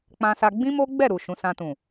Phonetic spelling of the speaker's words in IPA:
k͡p ã˧ s a˧ ɡ͡b ĩ˦ m o˦ ɡ͡b ɛ˦˨ ɾ u˨ ʃ ũ˨˦ s ã˧ t ũ˨

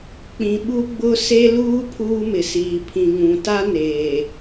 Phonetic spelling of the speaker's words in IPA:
k͡p ĩ˨ ɓ u˦ ɡ͡b ʊ˦ s e˦ l uː˦ pʰ uː˦ m ɪ˨ s iː˨ pʰ ĩ˨ ŋ ũ˨ t a˦ n eː˨

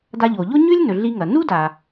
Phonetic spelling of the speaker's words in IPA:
d a˧ ʎ o˩ ʎ o˥ ɲ ʉ˥ lʲ n ɵ˩ ɮ i˧ ŋ ɐ˩ n u˥ d a˩

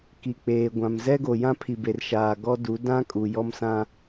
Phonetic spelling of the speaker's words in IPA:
k i˨ k͡p eː˨ ɡʷ ã˨ m z ɛ˦ ɡ o˨ j ã˦ pʰ i˨ b e˨ r ʃ aː˨ ɡ ɔ˦ d u˨˦ d ã˦ kʼ u˨ j ɔ˦ m s ã˦

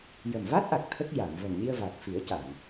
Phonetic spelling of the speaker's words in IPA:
j ə˨˩ m v a˦˥ t̚ ʔ a˨˩ k̚ t̪ʰ ə˦˥ k̚ j a˨˩˨ m v ə˨˩ m ɲ i˧ ə̯ v a˨˩ k̚ f i˨˩˦ ə̯ c a˨˩˨ ŋ

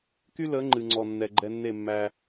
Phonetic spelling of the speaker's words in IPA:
k y˦ l ə˨˦ ŋ͡ǃ ɨ˨ ŋ͡ǀ ɔ˨ nː ɛ˨ ɡ͡ǃ ɛ˧ nː e˦˨ mː æ˧

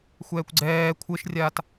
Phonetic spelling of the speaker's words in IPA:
xʷ ɛː kʷ ɡ͡ǀ ɛː kʷʰ ɘ ʃ rʲ aː t

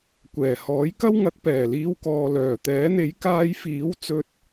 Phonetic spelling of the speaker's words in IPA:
kʷ ɛː˨˩ h ɔː˨˥ j k ɐ˥ w ŋ ɐ˨˥ k̚ p ɛː˨˩ l iː˧ w k ɔː˨ l œː˨˩ t̪ ɛː˨˥ n̪ e˨˥ j k aː˧ j f iː˨˥ w t͡s ɵ˧ t̚

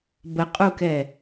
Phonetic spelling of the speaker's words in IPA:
b ə qʼ u k ɛ

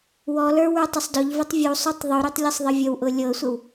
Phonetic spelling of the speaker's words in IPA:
w ɔ l ə˞ w ə˞ tˤ ʊ sˤ d ɔ ʎ v o tˤ vʲ u sˤ o tˤ ðˤ y ɾ y tˤ lʲ ɤ sˤ ðˤ ə vʲ ə w ʔ ʊ lʲ ɤ sʷ ə w

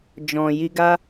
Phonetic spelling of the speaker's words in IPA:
d͡ʒ ɔ̃˨ j i˧ ɡ a˧

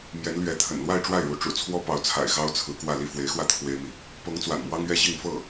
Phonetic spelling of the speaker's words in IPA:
m j ɛ˧˥ n l ɥ ɛ˧˥ t̪ʰ ə̰˨˩ n l w a˥˧ ɪ̯ ʈ͡ʂ w a˥˩ ɪ̯ ɻ u˧˥ ʈ͡ʂ ṵ˨˩ t͡sʰ w ɔ˥ p ɑ˧˥ ʊ̯ t͡sʰ a̰˨˩ ɪ̯ x ɑ˥ ʊ̯ t͡sʰ ɹ̩˧˥ k w ä˥˧ l i˥˩ f w e˧˥ ɪ̯ x w ä˥˩ t̪ʰ w e˥ ɪ̯ m i˨ | p ɤ˧˥ ŋ t͡s w a̰˨˩ n m w ɑ˥ ŋ ɥ ɛ˥ ɕ i˥˧ ŋ f ɤ˥˩

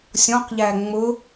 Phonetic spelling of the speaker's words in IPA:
sʲ ɔ̃ q ʎ æ ŋ͡m ʊ

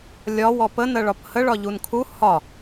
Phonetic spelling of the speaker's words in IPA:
lʲ ɒ w ɔ p ə n ɜ ɭ ɒ p h ə ɭ ɒ ʎ u n kʰ u h ɒ

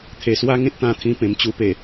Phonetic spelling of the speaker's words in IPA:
t̪ʰ e˨˩ s w a˦ ŋ ẽ˦ t̚ t̪ ã˧ t̪ʰ ĩ˧ p ẽ˨˩ m t͡ɕ u˧ p e˨˩

